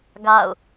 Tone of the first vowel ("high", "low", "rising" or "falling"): falling